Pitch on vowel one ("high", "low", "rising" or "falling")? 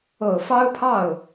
low